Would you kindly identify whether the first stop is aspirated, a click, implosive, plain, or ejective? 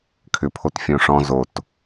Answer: aspirated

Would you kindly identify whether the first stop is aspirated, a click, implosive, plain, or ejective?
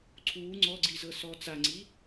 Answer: click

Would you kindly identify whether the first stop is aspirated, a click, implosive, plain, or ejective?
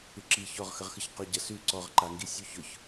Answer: click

